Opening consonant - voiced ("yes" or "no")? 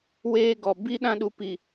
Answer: yes